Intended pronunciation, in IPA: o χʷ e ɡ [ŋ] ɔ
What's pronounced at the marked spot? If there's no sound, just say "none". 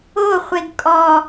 kʼ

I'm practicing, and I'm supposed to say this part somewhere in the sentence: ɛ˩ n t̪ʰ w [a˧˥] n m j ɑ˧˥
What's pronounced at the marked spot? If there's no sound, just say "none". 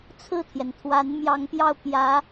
a˧˥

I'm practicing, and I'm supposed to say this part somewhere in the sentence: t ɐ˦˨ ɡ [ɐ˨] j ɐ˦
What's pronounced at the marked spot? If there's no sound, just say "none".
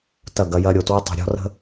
ɐ˦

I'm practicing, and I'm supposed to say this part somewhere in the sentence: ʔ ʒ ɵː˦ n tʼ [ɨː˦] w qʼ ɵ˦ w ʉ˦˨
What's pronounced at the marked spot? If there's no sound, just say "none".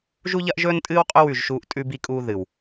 ɨː˦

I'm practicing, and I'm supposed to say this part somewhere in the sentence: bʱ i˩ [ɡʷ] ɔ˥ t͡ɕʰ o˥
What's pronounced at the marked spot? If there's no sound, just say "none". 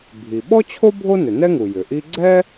ɓ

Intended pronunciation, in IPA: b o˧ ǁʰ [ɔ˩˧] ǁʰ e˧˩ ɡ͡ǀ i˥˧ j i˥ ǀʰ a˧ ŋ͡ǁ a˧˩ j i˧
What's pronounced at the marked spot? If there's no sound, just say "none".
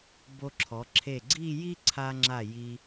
ɔ˩˧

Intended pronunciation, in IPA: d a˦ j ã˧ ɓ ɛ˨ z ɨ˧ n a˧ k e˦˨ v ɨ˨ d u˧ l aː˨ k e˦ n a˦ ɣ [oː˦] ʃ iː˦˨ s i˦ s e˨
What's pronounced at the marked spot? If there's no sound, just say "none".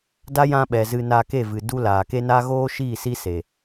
oː˦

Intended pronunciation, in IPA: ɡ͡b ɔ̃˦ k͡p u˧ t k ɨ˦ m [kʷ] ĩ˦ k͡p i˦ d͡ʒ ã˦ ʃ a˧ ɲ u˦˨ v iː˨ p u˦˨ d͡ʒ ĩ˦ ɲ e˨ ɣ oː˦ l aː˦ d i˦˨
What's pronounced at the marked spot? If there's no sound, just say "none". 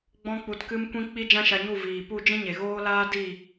kʷ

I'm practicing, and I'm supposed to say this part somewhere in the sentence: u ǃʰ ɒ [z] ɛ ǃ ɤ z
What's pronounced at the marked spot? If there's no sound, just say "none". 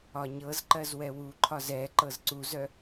z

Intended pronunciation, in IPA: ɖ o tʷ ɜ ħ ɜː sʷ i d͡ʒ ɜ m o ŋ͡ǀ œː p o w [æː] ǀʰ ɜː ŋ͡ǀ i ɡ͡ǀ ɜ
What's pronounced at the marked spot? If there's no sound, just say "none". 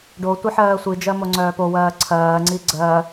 ɜː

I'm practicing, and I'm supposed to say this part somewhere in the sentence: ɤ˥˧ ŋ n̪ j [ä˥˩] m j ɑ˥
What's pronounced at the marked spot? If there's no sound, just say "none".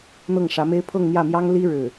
ä˥˩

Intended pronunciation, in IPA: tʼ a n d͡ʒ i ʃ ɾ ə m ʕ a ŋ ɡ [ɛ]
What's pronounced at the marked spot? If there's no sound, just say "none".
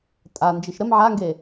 e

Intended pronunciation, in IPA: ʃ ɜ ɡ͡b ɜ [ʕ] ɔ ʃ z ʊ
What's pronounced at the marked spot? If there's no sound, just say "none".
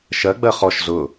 χ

